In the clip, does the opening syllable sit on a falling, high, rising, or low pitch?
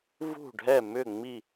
falling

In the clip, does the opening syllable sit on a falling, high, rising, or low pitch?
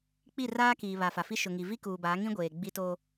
falling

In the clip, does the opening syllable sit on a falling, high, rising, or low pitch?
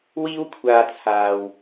high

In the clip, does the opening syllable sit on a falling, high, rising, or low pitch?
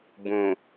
low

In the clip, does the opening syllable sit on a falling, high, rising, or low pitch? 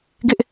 high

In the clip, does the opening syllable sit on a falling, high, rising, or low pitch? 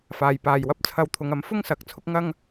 low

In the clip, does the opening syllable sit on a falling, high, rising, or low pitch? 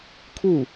falling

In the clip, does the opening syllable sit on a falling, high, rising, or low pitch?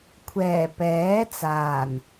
low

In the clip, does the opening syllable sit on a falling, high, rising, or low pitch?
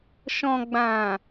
low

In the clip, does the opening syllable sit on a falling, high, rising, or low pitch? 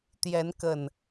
rising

